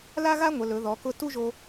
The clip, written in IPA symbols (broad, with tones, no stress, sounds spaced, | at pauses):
l a˥ ɣ a˥ ŋʷ ə˩˧ l ɵ˩˧ ð ɔ˩˧ k ʊ˧ t u˥ ʒ o˧